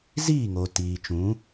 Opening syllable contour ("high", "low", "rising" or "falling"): falling